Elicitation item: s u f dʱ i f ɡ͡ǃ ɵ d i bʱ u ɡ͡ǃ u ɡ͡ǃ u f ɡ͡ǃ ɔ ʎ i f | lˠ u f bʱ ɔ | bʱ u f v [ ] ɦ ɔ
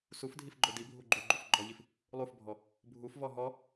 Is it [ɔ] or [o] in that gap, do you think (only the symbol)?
ɔ